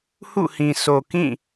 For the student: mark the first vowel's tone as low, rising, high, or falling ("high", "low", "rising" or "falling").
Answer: falling